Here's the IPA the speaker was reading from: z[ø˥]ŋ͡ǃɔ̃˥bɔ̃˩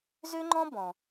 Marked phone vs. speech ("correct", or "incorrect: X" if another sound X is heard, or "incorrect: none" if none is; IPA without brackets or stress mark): correct